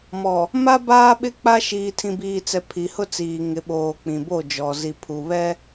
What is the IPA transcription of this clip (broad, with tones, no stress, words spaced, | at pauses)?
mɔ˨ | ma˦ baː˦ɓɪ˦k͡pa˦ ʃiː˨tʰĩ˨biː˨t͡sɛ˨ pʰi˨hʊ˦t͡siː˨ ŋɪ˨˦ ɓoː˨k͡pĩ˨bo˦˨ d͡ʒɔ˨zi˨pʰu˨ βɛ˦